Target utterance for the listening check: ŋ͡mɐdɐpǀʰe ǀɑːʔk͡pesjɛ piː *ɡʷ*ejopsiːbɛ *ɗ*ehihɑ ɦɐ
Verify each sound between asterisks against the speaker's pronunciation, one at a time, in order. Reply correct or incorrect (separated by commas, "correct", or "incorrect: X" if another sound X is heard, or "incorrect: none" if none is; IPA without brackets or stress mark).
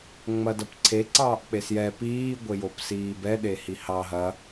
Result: correct, correct